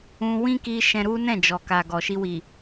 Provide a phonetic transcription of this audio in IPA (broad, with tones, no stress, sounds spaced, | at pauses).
ũ˧ w ĩ˦ k i˧ ʃ ɛ̃˧ ɾ u˦ n ɛ̃˦˨ d͡ʒ ɔ˨ k a˨ ɡ ɔ˨ ʃ i˧ w i˨